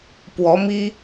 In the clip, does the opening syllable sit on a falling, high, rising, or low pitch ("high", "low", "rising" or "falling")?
rising